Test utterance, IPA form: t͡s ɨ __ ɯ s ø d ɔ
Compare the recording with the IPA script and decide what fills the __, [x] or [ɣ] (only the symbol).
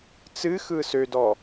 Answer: x